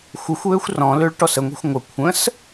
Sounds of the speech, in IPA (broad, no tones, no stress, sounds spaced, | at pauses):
xʷ ə xʷ øː xʷ r ɔ̃ l ø ɭ ʈ ɔ s ə ŋʷ a̤ xʷ ŋʷ ə kʷʰ ə̃ s